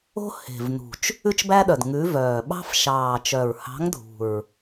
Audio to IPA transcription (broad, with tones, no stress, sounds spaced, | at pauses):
o̤˦ h e̤˨˩ v n ṳ˨˩ t͡ʃ | ʉ˦ t͡ʃ b æ˦ ɗ œ˨˩ d ŋ ʉ˨˥ v œː˨˩ ɓ ɑ̤˦ f ʃ ɑː˨˩ t͡ʃ œ˨˩ ɹ h ɑ̤˨˥ ŋ dʱ ṳ˨˩ ɹ